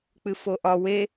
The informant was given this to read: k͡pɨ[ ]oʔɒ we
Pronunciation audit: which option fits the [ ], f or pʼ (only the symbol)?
f